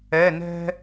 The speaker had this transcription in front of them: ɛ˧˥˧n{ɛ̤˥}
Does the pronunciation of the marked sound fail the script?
no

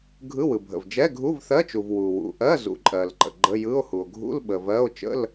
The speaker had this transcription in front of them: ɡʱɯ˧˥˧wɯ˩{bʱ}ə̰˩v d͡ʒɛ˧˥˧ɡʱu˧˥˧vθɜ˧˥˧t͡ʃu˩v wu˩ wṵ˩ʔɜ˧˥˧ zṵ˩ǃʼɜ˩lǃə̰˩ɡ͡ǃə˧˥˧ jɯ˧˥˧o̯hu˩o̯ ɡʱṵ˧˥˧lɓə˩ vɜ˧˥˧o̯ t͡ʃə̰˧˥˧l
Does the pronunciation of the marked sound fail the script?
no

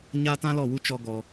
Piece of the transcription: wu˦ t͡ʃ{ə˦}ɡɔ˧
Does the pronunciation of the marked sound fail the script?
yes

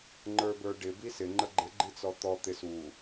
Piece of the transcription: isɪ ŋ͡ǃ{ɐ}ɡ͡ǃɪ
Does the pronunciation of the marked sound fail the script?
yes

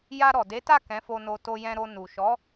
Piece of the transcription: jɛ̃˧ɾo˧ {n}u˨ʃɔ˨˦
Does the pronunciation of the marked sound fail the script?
no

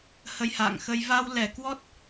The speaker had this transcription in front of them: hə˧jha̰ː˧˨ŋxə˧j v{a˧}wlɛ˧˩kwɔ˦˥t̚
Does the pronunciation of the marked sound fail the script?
no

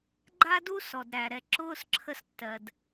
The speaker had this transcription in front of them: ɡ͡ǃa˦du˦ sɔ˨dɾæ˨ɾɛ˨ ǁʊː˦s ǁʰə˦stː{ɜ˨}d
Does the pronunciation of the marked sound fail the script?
no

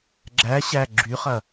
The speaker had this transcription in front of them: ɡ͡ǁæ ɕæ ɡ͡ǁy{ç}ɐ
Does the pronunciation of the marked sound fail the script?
yes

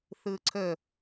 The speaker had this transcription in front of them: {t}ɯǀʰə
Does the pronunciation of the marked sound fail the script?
yes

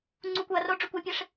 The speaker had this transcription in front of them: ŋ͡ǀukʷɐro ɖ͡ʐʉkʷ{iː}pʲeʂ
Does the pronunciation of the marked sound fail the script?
yes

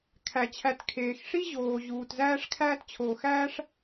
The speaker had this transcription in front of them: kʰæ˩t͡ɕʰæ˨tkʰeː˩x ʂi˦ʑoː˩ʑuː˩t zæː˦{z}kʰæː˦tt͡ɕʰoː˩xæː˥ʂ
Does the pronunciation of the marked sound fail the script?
yes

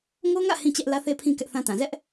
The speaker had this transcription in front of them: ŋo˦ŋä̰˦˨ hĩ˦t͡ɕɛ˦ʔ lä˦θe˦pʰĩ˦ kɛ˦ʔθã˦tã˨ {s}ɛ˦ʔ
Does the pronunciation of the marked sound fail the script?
yes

